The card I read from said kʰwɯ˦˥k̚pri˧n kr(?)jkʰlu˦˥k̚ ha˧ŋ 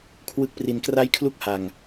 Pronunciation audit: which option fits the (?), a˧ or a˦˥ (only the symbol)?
a˦˥